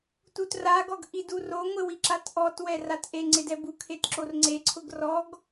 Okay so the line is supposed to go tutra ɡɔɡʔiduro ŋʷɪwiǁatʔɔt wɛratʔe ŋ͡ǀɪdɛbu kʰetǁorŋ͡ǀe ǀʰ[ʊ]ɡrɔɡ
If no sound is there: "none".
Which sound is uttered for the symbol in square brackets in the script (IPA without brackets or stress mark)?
ʊ